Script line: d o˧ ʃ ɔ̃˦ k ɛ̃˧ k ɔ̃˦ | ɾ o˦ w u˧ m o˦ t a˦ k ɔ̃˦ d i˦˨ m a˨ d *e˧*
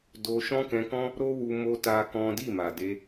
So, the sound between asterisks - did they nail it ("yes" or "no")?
yes